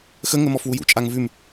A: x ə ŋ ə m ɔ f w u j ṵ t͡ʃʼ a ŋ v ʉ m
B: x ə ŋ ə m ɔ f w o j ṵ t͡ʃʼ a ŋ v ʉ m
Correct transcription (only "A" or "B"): A